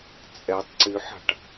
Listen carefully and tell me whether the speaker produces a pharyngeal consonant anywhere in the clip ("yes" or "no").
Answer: yes